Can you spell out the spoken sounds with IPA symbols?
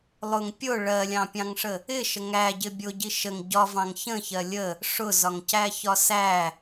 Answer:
lˠ ʊ ŋ pʲ ʊ ɭ ɜ lʲ ɑ̃ pʲ ɑ̃ ŋ ʂ ə | ɪ ʃ ə ŋ æ ɟ ɪ bʲ ʊ ɟ i ʃ ə ŋ ɟ ɒ v ɑ̃ ŋ ç ə̃ ç ɜ lʲ ə | ʂ ʊ z ɒ ŋ c æ ç ɒ s æ

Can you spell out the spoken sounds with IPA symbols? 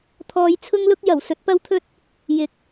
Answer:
t̪ʰ ɔː˧ j t͡sʰ ʊ˥ ŋ l ʊ˥ k̚ j ɐ˨˩ w s ɵ˨˥ t̚ p ɐ˥ w t̪ʰ ɵ˥ t̚ | j ɪ˨˥ k̚

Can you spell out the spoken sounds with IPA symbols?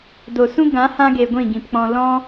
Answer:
d o˨ s ũ˦ ɡ ã˨˦ h ã˧ ɡ e˨ ɡʷ ĩ˦˨ ɡ ĩ˨ p k͡p ɔ̃˧ l ɔ̃˦

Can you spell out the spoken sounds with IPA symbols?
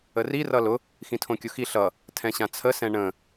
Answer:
ə r i r ʌ l ʊ | x ĩ tʰ õ kʲ ʊ x i ɬ ʌ | tʰ ɛ̃ ɕ ã t͡sʰ ə s ɛ̃ ɳ ə̃

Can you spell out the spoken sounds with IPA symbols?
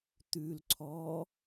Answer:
t̪ ʉ l ǀʰ ɔ

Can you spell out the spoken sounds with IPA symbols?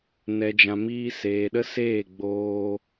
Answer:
n ɛ˨ d͡ʒ ã˨ m iː˧ s eː˨ ɗ ə˦ s eː˦˨ ɡ͡b oː˧

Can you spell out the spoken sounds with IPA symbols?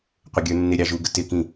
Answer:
qʷ ə ɡʲ ə˞ nː ɪ ɾʲ ɑ ʒ u ɡ ə t ɪ k ĩ

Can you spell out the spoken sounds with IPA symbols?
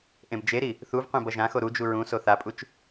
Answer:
ʔ ẽ b d͡ʒ e ɾ i | θ u v qʷ ẽ b ʌ ʒ ã x o ɾ u d͡ʒ u ɹ ũ s o θ a pʼ u t͡ʃ

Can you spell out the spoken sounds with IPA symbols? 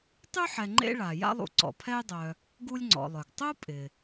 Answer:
tˤ y˥ ħ ɛ˨ ŋ͡ǃ ḛ˦ ɭ a˩ j a̰˥ lˠ ṵ˨ ǀ ɔ̰˩ pʰ ɛ˥ j dˤ œ˨ | ɡ u˥ lʲ ŋ͡ǀ ɔ̰˨ lˠ œ˩ ɡ tˤ u˥ pʼ ɪ˩

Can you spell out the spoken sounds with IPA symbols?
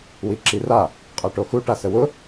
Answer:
w i ǁ i r a | qʼ a ʈ o x u ʈ a s ə w ʊ

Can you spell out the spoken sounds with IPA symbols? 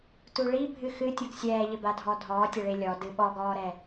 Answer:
t u ɭ i bʱ ɨ x ɨ tʲ u ɡ sʲ ɛː ʎ ɘ b a dʱ ɔ dʱ ɔː tʲ ɐ ɭ e lʲ ɔ d ɨ ɓ ɔ ɡ ɔː ɾ ɛ

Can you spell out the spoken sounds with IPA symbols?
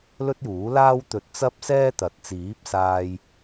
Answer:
l ɵ˥ t̚ j uː˨˥ l aː˥ w t̪ ɵ˨˥ t̚ t͡s ɐ˥ p̚ s ɛː˥ t̪ ɐ˨ t̚ t͡s iː˨˥ p̚ s aː˧ j

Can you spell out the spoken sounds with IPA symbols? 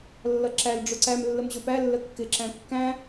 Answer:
lː ʌ ǁ æ l ɖ͡ʐ ʊ ǀ æ m lː ə m ʑ ʊ p æ lː ə kː ɪ ǁ æ̃ kː æ̃

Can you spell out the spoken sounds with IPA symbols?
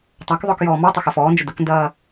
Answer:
tˤ a k ðˤ ʊ k j ɔː m ɔ tˤ ʊ x œ f ɔː n d͡ʒ ə d ʊ k n d ɐː

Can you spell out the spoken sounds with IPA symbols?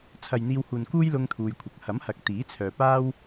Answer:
t͡sʰ ɐ˨ j n̪ iː˧ w h uː˨ n k uː˥ j l ʊ˥ ŋ t̪ʰ uː˧ j kʷʰ ɐ˨˥ k̚ h ɐ˨˥ m h ɐ˨ k̚ t̪ iː˨˥ t͡sʰ œː˨ p aː˥ w

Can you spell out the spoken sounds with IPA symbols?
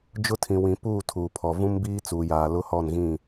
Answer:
d͡ʒ ʊ˦ tʰ ĩ˨ w ĩ˨ p uː˦˨ tʰ uː˨ pʰ ɔ˨ v ũ˦ m b iː˦ t͡s uː˨ j aː˨ l ʊ˦ h ɔ˦˨ n ɣ ĩ˦˨

